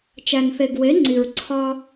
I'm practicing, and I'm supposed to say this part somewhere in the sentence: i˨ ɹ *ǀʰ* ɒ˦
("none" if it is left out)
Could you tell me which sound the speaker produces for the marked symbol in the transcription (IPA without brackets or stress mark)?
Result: ǀʰ